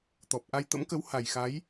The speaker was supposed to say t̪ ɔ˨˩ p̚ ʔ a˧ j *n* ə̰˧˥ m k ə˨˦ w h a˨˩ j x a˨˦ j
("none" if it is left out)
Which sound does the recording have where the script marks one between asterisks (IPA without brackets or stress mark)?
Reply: t̪